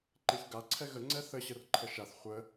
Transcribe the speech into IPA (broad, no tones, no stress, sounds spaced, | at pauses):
ǃ e ç ɡ a ǀʰ ɛ ɣ ə ŋ͡ǀ ɛ θ ə ɕ ə r ǃʰ ə ʃ a θ χʷ ə